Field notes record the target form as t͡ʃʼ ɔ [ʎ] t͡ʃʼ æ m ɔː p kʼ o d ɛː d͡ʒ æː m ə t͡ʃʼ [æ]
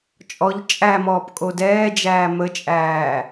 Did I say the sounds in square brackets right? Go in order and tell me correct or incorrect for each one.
correct, incorrect

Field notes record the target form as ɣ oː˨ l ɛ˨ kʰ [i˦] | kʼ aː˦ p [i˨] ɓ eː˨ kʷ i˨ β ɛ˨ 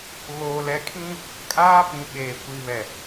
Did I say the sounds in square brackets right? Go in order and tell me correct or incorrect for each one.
incorrect, incorrect

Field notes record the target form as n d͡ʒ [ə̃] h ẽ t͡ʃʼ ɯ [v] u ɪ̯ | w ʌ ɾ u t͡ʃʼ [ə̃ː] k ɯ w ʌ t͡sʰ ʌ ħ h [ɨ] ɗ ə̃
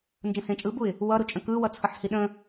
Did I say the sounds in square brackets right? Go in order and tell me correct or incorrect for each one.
correct, incorrect, incorrect, incorrect

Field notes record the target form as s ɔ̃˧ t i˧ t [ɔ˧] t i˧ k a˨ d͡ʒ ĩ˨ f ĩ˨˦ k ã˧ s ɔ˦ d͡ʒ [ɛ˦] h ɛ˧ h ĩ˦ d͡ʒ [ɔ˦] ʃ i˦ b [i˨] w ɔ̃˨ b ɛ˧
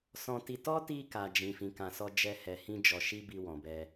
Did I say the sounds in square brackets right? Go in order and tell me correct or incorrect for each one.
incorrect, correct, incorrect, incorrect

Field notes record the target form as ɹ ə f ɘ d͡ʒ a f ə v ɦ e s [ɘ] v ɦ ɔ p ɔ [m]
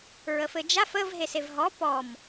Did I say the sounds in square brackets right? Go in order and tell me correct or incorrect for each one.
incorrect, correct

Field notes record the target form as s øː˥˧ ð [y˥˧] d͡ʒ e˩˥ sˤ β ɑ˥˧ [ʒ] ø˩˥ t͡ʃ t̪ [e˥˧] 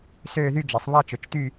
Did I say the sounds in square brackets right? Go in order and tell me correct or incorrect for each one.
correct, incorrect, incorrect

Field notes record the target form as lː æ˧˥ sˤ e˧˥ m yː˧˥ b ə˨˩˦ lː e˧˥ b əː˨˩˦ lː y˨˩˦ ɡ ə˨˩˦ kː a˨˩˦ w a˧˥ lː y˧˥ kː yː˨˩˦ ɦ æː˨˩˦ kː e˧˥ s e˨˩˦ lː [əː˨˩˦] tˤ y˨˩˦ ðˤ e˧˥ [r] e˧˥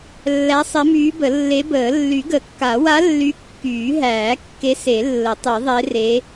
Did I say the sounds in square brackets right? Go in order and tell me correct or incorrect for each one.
incorrect, correct

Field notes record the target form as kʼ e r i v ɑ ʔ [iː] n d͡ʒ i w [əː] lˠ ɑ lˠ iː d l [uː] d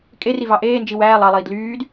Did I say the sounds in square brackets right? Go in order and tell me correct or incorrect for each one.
incorrect, incorrect, incorrect

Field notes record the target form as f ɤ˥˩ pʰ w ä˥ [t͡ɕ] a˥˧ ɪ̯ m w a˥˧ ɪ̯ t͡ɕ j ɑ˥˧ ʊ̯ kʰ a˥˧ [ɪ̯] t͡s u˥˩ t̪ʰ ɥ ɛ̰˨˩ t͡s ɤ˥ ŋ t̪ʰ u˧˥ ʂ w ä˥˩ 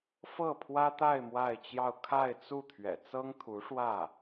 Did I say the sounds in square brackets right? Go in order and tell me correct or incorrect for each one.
incorrect, correct

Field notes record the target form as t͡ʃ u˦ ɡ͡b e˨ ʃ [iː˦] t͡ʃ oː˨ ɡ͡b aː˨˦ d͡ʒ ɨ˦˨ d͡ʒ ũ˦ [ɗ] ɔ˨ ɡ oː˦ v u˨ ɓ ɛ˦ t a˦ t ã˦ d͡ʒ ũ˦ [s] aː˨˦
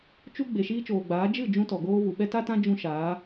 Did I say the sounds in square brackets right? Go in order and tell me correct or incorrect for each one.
correct, incorrect, incorrect

